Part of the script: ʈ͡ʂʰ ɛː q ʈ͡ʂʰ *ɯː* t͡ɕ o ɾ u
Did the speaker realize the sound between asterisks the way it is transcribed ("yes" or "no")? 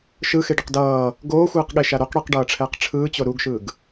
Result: yes